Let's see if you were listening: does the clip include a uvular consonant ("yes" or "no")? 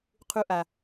yes